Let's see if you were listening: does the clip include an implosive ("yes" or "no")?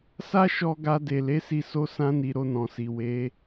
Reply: no